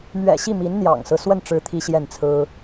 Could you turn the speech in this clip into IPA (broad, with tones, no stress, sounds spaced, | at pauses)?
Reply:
m ɥ ɛ̰˨˩ ɕ i˥˩ m i˧˥ n n̪ j ɑ̰˨˩ ŋ s ɹ̩˦ s w ə˥˩ n ʈ͡ʂ ɻ̩˧˥ t̪ʰ i˥ ɕ j ɛ˥˩ n t͡sʰ ɹ̩˥